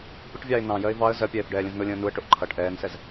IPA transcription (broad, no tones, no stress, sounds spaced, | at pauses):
pʲ ə ʈ vʲ ɑ ɪ̯ n ɑ̃ j ɜ ɪ̯ v ɑ ə̯ z ɜ pʲ ɛː f ɖ ɛː lʲ ə̃ z n ʊ lʲ ə̃ː n u ə̯ ʈ ʊ ʔ ǃʰ ʌ ʈ ʔ ɛː n s ɛ z